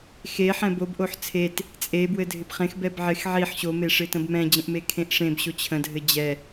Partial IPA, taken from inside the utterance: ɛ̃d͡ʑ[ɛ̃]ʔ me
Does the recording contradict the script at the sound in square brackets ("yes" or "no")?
yes